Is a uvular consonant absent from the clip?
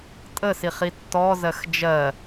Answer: no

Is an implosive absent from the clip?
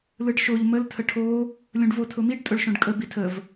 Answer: yes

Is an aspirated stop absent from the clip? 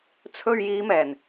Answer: no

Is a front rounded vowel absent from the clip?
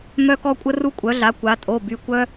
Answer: no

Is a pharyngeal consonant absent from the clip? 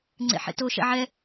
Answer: no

